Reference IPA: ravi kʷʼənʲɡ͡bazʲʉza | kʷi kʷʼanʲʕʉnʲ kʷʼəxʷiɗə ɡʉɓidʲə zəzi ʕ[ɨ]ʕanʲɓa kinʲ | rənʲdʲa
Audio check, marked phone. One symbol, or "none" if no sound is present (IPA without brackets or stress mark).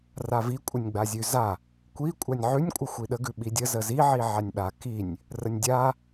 i